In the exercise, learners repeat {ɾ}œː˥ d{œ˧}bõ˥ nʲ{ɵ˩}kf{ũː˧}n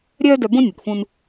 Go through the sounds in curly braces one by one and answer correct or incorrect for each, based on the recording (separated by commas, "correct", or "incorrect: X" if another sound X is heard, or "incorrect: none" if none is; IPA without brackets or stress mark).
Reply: incorrect: ɾʲ, correct, correct, correct